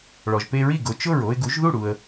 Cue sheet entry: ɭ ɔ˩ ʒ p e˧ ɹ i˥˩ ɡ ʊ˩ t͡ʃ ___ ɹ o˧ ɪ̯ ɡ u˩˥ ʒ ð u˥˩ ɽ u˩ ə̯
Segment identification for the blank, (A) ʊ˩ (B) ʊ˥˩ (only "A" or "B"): B